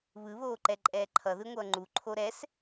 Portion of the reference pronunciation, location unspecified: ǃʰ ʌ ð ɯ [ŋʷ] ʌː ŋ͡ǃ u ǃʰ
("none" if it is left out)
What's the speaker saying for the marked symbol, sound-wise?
ŋʷ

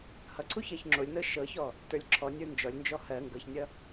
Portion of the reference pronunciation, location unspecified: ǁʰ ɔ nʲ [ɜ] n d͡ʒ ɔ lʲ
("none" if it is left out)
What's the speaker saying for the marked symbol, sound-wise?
ə˞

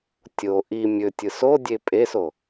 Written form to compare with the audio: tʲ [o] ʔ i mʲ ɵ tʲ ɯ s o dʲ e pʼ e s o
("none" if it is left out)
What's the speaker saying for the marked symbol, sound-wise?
o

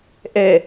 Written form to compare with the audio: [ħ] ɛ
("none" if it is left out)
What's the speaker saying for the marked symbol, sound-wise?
ʔ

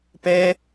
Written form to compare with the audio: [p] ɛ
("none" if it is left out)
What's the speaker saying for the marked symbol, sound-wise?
p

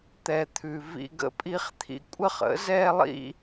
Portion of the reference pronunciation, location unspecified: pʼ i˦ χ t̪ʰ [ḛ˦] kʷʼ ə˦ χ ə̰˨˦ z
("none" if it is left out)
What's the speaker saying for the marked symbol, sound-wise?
ḭ˦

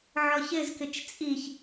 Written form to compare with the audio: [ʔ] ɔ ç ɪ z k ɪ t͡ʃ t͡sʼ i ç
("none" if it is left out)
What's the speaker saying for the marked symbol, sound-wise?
ʕ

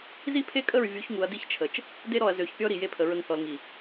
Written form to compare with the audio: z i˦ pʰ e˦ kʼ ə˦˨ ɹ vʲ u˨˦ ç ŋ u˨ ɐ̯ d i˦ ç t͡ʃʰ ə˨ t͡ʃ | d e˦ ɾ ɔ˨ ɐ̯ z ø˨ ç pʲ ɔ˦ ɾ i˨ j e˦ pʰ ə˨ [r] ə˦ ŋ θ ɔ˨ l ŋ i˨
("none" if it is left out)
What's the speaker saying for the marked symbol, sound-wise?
ɹ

